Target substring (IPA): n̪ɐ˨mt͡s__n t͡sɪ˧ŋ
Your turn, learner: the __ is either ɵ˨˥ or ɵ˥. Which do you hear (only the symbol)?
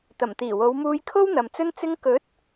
ɵ˥